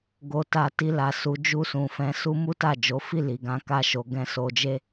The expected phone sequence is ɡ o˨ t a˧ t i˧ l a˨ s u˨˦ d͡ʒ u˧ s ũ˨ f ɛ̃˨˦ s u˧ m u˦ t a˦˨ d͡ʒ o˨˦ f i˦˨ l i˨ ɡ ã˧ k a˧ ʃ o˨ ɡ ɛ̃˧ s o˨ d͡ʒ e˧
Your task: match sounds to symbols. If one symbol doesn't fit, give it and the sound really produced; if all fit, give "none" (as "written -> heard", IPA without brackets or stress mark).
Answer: none